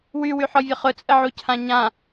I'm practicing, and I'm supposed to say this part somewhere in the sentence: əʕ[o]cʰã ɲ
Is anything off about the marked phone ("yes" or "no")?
yes